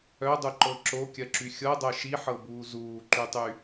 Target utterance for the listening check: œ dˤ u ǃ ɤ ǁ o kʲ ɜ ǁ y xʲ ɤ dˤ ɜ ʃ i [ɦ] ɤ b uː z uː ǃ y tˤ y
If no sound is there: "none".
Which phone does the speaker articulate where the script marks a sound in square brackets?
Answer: ħ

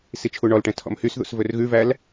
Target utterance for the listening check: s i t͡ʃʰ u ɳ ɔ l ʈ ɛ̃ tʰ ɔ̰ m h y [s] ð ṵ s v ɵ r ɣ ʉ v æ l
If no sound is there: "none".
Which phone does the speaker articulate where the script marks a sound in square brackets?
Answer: s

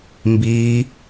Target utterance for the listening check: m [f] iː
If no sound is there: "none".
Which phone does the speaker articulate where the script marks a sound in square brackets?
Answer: b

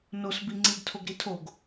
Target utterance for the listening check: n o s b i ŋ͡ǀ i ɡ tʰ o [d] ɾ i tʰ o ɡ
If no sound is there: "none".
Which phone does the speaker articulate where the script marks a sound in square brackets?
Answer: ɡ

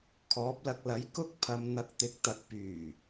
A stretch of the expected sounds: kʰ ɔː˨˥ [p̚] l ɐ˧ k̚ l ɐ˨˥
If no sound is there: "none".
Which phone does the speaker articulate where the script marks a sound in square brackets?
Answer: p̚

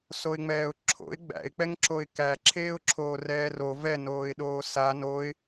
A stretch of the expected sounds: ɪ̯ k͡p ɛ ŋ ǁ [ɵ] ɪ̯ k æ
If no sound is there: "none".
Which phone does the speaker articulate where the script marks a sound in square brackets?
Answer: o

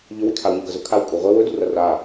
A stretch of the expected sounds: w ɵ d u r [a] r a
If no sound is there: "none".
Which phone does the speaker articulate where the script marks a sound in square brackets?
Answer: ɐ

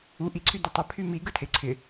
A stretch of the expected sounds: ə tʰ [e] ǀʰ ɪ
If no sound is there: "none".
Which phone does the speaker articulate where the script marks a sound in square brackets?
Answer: e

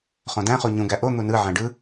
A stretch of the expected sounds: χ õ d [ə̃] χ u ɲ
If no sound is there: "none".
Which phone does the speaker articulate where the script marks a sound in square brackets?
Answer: æ̃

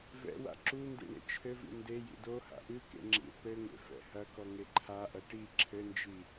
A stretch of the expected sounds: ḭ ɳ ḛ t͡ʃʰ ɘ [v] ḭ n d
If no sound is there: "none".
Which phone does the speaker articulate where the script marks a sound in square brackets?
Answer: v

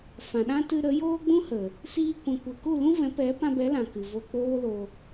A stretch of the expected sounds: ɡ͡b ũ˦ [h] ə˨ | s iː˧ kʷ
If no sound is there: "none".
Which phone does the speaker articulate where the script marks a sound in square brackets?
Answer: h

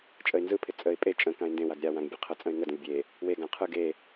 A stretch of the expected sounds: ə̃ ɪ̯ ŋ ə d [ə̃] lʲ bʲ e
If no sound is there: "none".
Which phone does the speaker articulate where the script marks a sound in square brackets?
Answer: ə̃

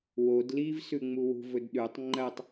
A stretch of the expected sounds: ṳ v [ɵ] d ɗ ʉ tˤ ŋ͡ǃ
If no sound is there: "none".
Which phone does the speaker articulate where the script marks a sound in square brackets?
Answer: ɵ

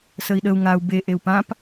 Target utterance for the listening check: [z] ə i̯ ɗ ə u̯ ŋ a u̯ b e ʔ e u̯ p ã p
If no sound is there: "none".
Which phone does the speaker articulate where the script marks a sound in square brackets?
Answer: s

